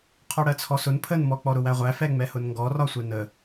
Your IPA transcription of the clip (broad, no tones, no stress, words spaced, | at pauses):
qʰɔɽɜt͡sʰɔsʊn pʰənmɔ k͡pɔɾʊwæʁʷæ fɛŋ͡mɛhʊnŋɡɔ rɒsʷɛnə